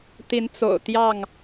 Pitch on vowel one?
rising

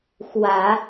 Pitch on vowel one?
low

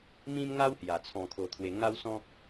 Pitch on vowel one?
high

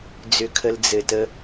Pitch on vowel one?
low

